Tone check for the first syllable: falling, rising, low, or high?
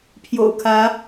low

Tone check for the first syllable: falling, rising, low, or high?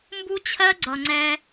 high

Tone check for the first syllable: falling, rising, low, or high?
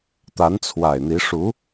rising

